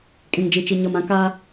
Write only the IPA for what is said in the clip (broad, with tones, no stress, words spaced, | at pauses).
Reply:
kʼĩ˨ŋd͡ʒi˨ t͡ʃi˨ɲɔ˨mã˨˦ ka˦